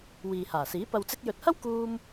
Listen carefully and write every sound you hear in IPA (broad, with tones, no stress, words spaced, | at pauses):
wiː˨haː˨˩siː˨˥ pɐ˨wt͡sɪ˧k̚jɵ˨t̚hɐ˥w kuː˧m